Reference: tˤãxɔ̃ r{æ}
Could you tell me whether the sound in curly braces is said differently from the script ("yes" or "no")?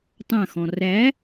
no